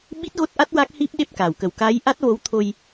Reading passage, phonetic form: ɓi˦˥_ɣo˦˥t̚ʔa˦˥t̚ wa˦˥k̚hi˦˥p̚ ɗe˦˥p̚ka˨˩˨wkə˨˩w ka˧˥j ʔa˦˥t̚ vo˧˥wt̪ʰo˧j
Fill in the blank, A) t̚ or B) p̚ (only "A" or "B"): A